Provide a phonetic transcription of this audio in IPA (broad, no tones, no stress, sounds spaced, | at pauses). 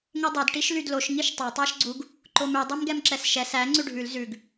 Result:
ŋ e dˤ ɛ d ʈ i ʃ l y d l o ʃ ŋ i ʃ tˤ æ tˤ æ ʃ ɡ͡ǀ u ɡ | ǃ o m ʉ dˤ ɛ m ɡ ɛ m ǁ ɛ s ʃ ɛ s æ ŋ͡ǀ ʉ ɖʱ ʉ l z ʉ ɡ